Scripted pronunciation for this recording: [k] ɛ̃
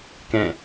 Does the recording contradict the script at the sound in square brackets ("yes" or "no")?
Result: no